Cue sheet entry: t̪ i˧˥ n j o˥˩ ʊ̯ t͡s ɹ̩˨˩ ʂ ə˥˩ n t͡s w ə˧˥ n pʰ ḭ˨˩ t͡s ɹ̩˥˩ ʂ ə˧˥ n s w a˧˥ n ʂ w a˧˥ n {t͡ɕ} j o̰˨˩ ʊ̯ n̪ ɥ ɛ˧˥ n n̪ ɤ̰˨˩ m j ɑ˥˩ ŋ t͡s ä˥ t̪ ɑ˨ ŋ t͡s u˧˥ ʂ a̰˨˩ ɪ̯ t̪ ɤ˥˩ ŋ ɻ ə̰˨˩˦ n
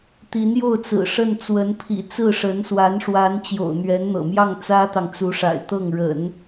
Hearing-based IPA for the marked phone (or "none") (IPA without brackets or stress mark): t͡ɕ